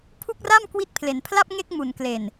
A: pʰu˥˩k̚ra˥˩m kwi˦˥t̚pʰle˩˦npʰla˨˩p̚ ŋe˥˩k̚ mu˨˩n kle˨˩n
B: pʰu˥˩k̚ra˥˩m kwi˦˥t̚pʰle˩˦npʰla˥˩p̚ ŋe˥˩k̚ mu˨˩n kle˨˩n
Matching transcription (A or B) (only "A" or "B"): B